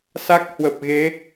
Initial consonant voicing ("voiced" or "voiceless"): voiceless